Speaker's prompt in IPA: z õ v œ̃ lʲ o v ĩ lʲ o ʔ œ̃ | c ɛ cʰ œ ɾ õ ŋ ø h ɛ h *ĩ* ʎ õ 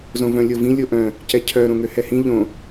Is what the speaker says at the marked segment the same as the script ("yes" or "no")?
yes